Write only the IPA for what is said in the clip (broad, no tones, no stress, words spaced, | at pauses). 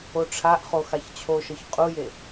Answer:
oʈ͡ʂʰaʔχo xaçt͡ɕʰoʃɤç qʼuje